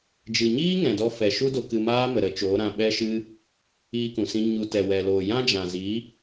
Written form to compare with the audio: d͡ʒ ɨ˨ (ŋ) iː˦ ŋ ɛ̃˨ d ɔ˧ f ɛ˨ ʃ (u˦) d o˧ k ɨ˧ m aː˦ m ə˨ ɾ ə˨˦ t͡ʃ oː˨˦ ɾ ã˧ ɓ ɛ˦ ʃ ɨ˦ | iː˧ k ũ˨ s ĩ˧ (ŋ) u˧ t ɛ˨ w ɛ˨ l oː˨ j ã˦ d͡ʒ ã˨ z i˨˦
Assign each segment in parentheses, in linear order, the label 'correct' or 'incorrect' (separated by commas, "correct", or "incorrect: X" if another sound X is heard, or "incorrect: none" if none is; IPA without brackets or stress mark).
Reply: incorrect: ɲ, correct, incorrect: ɲ